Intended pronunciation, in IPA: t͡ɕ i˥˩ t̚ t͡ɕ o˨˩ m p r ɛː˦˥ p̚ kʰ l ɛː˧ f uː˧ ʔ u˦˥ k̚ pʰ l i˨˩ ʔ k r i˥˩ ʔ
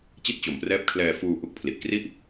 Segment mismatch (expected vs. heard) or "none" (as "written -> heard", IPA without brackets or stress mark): none